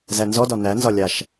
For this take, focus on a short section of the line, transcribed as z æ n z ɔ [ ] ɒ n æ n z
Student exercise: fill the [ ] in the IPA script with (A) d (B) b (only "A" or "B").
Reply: A